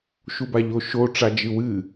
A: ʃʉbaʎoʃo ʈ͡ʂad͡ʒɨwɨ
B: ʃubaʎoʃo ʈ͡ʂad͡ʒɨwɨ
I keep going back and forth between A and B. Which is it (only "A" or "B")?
B